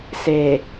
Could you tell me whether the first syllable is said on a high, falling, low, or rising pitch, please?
low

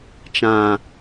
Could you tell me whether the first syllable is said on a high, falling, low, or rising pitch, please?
low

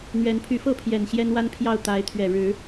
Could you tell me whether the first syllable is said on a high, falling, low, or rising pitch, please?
rising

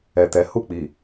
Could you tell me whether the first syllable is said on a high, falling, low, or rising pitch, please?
low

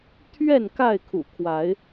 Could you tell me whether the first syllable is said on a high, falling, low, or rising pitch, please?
falling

